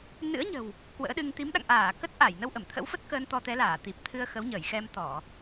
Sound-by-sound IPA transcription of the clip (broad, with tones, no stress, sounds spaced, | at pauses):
n ɨ̰˧˥ ə̯ ɲ ə̤˨˩ w | k w ə̰ː˧˥ ɗ ɨ˧ ŋ t̪ i˨˦ m ɗ a̰˧˨ ŋ ʔ aː˧˩ k ə˦˥ t̚ ʔ a˧˩ j n ə˧ w ʔ ə˧˩ m t̪ʰ ə̰˧˥ w f ə˦˥ t̚ k əː˧ n t̪ ɔ˧ t̪ ɛ˨˦ l aː˧˩ t̪ i˨˩ p̚ t̪ʰ ɨ˧ ə̯ x ə˨˦ w ɲ əː˧˩ j x ɛ˧ m t̪ ɔ˧˩˨